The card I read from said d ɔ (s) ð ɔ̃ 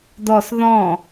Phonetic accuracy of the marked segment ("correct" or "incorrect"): correct